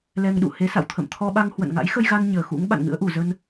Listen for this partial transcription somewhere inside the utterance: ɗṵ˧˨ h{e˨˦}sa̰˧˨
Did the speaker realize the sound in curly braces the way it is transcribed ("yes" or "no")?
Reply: yes